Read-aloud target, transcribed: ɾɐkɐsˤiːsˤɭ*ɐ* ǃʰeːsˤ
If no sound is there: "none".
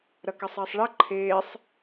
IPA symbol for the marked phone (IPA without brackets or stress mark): ɐ